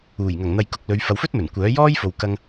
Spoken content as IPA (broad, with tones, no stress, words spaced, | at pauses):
uː˨˩jŋɐ˨˩ŋn̪ɐ˨jkʊ˨k̚ lɵ˨˧ɥfɐ˨˧wfɵ˥t̚mɵ˨˩n kʷœː˨˥jɔː˥jfo˨wkɐ˧ŋ